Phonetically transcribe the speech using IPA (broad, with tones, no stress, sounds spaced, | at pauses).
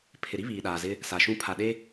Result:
pʰ ɪ˨ ɾ i˦ β iː˨ ɗ aː˨ z ɪ˦ | s a˨ ʃ ũ˦ pʰ a˨ ɗ e˦